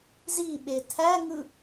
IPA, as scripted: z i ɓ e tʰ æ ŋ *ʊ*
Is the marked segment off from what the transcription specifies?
yes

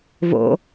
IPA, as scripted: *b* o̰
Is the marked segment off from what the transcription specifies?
yes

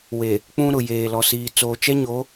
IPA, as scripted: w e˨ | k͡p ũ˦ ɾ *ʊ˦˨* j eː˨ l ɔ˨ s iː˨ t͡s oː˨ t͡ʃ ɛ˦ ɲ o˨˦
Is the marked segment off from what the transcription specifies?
yes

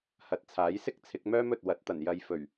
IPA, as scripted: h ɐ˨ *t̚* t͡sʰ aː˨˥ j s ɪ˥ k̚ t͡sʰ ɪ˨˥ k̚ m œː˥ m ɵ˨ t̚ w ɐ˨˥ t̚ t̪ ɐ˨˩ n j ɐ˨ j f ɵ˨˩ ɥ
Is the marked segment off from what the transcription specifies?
no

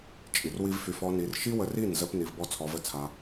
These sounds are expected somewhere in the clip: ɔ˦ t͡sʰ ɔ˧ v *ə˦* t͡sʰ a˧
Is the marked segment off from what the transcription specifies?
no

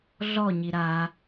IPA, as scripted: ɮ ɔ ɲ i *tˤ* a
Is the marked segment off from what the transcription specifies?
yes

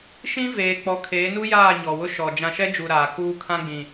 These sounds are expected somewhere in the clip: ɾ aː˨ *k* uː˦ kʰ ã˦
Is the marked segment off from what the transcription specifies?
no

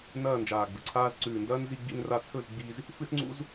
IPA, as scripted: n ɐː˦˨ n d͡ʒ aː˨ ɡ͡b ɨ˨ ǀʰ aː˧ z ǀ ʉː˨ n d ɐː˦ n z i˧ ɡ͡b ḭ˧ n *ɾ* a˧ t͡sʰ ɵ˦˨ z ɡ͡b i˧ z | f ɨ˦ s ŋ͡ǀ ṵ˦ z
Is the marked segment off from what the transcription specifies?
yes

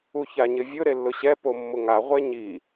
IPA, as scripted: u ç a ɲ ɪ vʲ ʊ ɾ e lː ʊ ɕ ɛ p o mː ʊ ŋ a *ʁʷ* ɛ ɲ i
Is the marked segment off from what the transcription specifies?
no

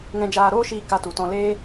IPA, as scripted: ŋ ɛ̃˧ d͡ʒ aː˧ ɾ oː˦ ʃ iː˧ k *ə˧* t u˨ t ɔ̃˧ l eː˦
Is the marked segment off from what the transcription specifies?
yes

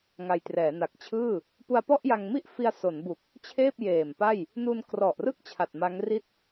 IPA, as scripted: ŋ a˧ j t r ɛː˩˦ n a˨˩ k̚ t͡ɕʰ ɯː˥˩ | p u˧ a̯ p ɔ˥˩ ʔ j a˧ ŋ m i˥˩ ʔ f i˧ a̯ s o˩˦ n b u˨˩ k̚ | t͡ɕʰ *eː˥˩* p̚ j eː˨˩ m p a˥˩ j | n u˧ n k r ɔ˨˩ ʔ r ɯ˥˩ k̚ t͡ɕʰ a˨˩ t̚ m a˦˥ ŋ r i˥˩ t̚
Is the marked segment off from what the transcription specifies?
no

